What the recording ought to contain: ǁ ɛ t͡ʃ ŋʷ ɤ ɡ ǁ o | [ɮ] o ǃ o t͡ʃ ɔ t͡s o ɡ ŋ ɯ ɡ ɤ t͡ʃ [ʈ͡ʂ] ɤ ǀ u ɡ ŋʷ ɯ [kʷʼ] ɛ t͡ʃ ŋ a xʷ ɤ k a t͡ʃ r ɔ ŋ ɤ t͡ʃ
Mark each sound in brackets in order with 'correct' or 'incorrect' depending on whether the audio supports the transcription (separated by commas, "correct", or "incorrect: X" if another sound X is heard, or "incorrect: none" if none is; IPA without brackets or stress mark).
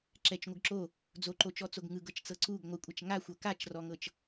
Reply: incorrect: d͡z, incorrect: t͡s, correct